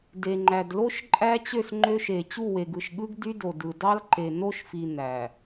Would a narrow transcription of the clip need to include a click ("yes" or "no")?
yes